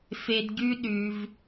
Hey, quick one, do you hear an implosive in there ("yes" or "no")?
yes